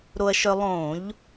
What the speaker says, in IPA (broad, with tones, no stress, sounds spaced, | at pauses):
ɾ o˧ ɐ̯ ʃ œ˧ lˠ õ˧˩˧ ʎ